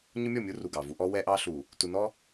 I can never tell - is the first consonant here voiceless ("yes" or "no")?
no